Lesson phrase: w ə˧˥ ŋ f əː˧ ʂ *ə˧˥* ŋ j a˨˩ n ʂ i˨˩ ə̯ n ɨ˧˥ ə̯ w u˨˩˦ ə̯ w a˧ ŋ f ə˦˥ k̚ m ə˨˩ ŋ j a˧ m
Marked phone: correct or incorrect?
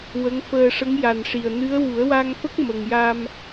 correct